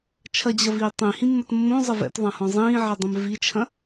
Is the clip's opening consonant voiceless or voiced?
voiceless